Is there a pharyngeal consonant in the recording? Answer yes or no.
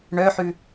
yes